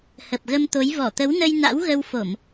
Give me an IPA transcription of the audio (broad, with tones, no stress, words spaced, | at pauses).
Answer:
hə˨˩p̚ɣə˧mt̪o˨˦j vɔ˧˩t̪ə˨˦wnə˧j na̰˧˥wɣə˧wfo˧˩˨m